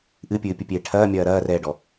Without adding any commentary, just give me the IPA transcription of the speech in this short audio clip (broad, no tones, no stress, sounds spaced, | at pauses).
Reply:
ʔ ɨ pʲ ɨː pʲ ɨ pʲ eː ʈʰ ɐː mʲ ɐː ɾ ɐː r ɛː ɖ ɔ